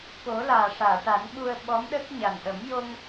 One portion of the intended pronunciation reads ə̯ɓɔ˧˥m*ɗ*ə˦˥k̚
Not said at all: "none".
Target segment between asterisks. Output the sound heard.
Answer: ɗ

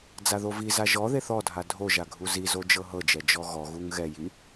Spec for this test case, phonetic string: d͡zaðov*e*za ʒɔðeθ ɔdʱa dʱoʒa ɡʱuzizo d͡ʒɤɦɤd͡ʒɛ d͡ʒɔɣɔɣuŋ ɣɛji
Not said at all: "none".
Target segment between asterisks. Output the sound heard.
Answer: i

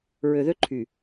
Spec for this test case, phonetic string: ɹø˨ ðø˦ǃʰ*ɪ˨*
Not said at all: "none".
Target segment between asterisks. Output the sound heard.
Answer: y˨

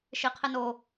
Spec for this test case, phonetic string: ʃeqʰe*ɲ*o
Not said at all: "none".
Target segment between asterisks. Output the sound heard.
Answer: n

